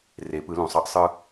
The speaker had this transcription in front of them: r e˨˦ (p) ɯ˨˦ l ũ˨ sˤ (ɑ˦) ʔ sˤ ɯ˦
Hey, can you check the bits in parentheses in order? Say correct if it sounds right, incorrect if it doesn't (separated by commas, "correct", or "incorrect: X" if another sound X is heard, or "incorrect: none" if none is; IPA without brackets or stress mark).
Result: correct, correct